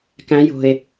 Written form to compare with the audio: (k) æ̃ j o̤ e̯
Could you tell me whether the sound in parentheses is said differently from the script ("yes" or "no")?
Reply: no